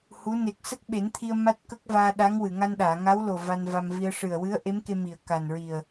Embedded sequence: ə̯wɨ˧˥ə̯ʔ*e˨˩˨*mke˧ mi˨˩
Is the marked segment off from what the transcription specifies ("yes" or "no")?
yes